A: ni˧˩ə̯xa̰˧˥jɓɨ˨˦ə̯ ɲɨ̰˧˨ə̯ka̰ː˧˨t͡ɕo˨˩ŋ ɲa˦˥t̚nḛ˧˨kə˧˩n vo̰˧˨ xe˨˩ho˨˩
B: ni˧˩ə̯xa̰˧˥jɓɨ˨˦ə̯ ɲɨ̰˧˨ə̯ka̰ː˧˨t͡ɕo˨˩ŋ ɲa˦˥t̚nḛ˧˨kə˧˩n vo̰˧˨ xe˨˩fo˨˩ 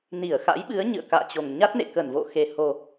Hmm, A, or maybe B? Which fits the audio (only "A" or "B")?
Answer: A